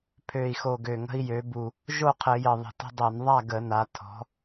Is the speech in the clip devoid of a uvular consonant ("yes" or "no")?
no